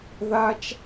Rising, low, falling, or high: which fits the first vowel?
high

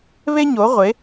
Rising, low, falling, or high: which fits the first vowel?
high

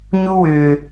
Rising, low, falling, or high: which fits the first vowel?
high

